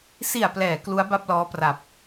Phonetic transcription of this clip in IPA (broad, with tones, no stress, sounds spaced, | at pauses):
s i˨˩ a̯ p l ɛː˩˦ k l u˦˥ a̯ b a˥˩ p̚ l ɔː˦˥ p r a˨˩ p̚